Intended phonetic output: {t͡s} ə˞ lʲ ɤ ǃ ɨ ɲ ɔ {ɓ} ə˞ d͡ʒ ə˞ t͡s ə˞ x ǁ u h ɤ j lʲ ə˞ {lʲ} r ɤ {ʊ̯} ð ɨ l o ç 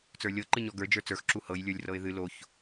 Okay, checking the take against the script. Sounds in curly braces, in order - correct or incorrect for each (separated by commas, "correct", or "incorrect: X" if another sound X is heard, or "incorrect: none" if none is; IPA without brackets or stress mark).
correct, incorrect: ɡ, correct, incorrect: ɪ̯